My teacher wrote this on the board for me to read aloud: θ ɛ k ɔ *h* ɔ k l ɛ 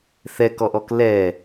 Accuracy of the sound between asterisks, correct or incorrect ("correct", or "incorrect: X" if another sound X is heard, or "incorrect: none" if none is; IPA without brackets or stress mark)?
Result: incorrect: ʔ